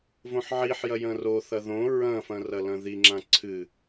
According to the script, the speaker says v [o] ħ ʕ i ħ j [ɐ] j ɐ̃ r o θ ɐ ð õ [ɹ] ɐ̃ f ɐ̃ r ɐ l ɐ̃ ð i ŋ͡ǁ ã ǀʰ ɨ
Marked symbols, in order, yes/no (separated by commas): no, yes, yes